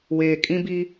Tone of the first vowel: low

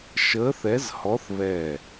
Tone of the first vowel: rising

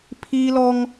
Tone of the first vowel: high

